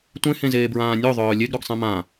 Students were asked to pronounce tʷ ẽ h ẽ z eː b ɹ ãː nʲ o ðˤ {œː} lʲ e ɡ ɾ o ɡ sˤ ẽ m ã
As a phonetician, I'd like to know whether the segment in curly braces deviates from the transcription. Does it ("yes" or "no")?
no